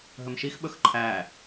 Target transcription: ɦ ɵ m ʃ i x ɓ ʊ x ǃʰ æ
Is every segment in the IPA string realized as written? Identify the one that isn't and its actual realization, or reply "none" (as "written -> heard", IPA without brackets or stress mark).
ʊ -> ɵ